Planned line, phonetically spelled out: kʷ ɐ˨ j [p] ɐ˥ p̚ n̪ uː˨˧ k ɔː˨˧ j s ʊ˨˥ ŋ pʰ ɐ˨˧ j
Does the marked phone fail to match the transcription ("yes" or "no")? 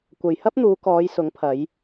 yes